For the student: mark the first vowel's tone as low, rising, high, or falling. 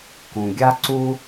low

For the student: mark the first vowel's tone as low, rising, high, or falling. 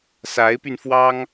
rising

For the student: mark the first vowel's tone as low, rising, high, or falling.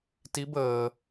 rising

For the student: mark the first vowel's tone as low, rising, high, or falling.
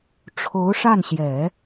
rising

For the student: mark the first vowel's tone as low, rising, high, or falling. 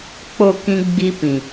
falling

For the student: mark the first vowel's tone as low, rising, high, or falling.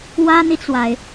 high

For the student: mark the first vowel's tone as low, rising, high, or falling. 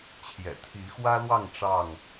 low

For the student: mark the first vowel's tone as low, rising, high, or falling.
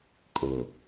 low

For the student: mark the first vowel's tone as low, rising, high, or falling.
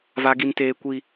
high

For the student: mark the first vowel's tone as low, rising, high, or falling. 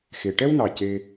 low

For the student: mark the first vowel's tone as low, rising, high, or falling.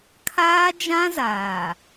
high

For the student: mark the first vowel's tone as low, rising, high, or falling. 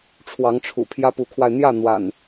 rising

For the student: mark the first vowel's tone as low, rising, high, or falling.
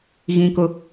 high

